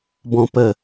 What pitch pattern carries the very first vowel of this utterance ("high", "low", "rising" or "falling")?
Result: low